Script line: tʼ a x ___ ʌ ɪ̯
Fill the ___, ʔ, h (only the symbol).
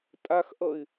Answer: ʔ